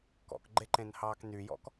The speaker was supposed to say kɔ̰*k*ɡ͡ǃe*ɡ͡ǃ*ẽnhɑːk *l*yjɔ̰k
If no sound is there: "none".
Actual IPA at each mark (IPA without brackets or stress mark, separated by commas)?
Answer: k, ǃ, n